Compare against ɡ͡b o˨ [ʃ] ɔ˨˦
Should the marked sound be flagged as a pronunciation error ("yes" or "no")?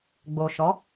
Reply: no